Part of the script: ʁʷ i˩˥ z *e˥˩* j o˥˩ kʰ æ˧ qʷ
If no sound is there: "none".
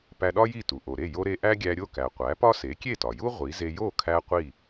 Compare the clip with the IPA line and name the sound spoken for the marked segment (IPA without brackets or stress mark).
e˧